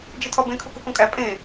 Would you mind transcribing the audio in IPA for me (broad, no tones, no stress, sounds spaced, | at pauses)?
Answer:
d͡ʒ i tʰ ɒ b ẽ kʰ u k u k õ kʼ æ pʼ ẽ